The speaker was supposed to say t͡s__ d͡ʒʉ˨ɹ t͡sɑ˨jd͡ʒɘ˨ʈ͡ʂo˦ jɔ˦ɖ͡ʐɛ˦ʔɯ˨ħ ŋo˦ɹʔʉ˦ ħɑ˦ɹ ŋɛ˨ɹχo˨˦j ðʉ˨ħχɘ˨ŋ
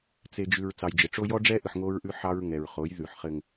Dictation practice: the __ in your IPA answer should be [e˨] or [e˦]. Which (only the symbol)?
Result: e˨